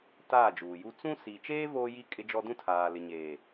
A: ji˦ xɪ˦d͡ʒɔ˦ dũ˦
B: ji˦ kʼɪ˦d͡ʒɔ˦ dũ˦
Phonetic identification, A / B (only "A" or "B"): B